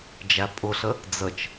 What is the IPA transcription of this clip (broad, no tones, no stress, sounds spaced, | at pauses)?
d͡ʒ æ pʼ ʊ ɬ ə | d͡z ə t͡ʃ